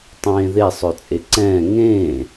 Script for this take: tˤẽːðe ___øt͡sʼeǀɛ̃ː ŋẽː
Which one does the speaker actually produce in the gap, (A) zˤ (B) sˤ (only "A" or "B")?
B